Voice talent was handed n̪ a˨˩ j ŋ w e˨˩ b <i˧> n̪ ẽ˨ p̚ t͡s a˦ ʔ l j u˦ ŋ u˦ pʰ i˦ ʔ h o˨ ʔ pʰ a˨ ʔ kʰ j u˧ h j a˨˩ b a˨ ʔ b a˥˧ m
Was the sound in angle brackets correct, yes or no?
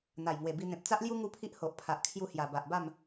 yes